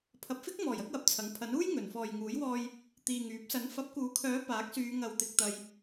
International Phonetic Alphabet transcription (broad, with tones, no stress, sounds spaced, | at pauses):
pʰ ɐ˨ p̚ f ɪ˥ k̚ m ɔː˨˩ j ɐ˨˥ k̚ w ɐ˧ p̚ t͡sʰ ɐ˨˥ ŋ pʰ ɐ˨˥ n uː˥ j ŋ ɵ˨˩ n f ɔː˨ j ŋ uː˨˥ j w ɔː˧ j | t̪ iː˨ ŋ yː˨˥ p̚ s ɐ˨˥ n f ɐ˨˥ p̚ k uː˨˥ kʰ œː˨˥ p aː˨˥ k̚ s yː˨˧ ŋ ɐ˨ w t̪ ɪ˨ k̚ t̪ ɐ˧ j